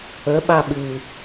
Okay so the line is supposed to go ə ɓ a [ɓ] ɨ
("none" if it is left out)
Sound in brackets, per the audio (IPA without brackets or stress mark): ɓ